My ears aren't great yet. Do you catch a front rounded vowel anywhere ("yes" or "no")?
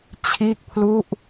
no